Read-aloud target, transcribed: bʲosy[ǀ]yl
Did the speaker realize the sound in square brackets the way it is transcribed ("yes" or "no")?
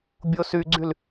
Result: no